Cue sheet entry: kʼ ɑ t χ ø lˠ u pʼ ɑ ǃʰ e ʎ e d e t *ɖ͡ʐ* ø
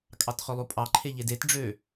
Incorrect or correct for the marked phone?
correct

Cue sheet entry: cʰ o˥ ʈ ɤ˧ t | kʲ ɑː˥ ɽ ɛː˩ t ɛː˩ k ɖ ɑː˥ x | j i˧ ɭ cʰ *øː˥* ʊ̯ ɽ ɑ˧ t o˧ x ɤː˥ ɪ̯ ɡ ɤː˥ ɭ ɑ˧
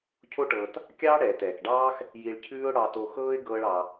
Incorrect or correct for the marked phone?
incorrect: ʉː˥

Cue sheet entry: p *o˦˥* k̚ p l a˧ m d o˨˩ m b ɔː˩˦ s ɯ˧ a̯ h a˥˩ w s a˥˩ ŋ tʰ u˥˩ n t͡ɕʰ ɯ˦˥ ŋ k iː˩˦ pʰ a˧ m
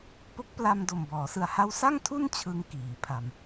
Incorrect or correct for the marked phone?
correct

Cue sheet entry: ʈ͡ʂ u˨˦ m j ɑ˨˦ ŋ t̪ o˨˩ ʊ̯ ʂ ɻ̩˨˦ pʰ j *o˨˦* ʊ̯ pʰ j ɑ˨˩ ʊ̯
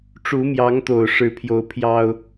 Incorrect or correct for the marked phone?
correct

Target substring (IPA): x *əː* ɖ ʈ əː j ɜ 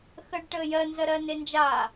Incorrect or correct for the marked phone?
correct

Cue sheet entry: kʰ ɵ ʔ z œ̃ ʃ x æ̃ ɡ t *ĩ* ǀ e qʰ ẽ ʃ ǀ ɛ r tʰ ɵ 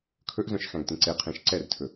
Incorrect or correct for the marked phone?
incorrect: ẽ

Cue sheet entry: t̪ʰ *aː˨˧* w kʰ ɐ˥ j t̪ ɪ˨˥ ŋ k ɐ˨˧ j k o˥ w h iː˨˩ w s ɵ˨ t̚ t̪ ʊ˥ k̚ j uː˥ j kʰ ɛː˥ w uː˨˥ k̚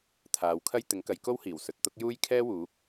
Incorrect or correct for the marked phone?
correct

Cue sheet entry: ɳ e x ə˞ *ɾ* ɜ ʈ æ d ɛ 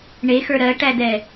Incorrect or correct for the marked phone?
correct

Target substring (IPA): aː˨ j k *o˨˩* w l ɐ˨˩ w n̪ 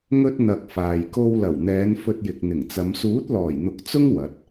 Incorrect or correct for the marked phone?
incorrect: o˧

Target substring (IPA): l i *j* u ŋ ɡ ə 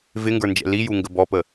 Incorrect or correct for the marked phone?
correct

